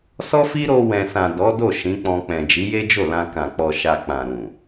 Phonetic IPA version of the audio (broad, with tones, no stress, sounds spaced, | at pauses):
s ɔ˦ f i˦ ɾ o˧ w ɛ̃˨ s ã˨ d ɔ˨˦ d o˦˨ ʃ ĩ˨˦ k͡p ɔ̃˧ k͡p ɛ̃˨ d͡ʒ i˨˦ j e˦ d͡ʒ o˦˨ l ã˧ k ã˨ k͡p ɔ˨ ʃ a˨ k͡p ã˨ ɾ ũ˨